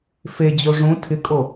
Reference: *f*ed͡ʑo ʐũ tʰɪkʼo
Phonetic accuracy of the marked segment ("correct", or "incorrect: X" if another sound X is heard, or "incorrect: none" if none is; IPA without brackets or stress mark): correct